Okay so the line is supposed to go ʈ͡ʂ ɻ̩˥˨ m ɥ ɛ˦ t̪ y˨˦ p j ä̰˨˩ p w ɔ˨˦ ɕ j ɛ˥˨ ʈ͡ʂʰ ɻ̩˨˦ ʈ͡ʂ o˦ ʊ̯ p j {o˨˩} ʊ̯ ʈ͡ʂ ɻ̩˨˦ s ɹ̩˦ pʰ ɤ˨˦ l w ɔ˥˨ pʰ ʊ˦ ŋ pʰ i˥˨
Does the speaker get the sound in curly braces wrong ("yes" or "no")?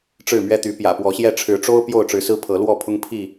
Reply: yes